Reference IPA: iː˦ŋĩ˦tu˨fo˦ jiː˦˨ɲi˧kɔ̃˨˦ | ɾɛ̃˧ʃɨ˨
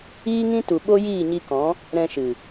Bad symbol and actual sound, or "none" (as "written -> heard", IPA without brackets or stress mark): f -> ɓ